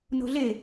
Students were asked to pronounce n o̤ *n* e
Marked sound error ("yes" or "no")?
yes